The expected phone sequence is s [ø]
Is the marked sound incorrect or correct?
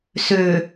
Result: correct